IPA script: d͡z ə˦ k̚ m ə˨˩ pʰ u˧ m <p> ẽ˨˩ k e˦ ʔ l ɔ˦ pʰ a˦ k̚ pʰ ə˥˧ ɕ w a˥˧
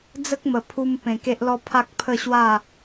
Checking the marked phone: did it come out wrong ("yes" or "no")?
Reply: no